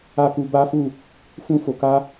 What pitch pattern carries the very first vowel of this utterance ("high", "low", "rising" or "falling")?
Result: high